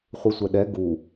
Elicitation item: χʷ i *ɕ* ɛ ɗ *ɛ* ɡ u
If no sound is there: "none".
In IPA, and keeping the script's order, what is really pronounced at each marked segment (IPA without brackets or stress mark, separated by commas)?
sʷ, ɛ